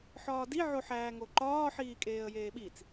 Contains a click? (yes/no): yes